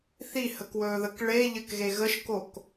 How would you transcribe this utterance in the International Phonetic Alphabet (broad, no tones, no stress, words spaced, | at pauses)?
θihəkwɵːðək ɭeʎɘkɣe ɣəʃkok